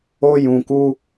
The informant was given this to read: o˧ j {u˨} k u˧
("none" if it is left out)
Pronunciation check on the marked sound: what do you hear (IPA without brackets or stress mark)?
ũ˨